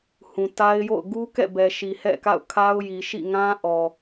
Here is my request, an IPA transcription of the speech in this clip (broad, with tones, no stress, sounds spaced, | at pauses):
h ũ˨ t a˦ ɪ̯ j o̰˦˨ ʊ̯ ɡ u˦ k ɛ̰˦˨ b ɛ˨ ʃ i˨ h ɛ̰˦˨ k a̰˦˨ ʊ̯ kʰ a˦ ʊ̯ j i˨ ʃ ḭ˦˨ ŋ ã˦ ʔ ɔ˨